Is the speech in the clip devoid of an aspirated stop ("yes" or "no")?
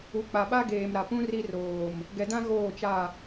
yes